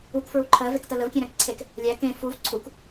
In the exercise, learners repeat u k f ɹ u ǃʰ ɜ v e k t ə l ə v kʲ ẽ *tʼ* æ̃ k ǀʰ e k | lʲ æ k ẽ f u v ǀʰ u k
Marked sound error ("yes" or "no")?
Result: yes